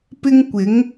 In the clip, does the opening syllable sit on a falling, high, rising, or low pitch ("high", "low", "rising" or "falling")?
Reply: high